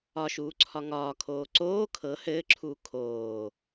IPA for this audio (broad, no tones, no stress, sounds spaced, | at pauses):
ɒ ʃ uː ǀʰ ɒ ŋ ɒː kʰ oː ǀ oː kʰ ɤ h ɘː ǁʰ uː kʰ oː